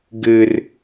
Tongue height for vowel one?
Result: mid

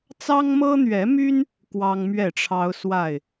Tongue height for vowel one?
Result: low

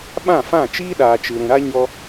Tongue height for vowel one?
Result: low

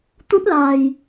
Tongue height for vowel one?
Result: high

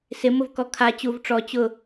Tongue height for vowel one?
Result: high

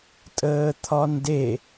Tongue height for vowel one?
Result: mid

